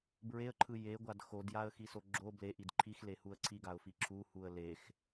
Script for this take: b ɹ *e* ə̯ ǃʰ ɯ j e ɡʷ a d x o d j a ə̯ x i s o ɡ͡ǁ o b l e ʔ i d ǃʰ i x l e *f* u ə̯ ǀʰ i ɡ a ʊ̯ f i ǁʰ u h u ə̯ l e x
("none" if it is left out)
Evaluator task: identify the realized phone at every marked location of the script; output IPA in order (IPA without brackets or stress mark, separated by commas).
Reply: e, h